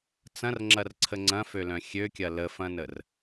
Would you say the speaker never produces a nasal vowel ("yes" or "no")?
no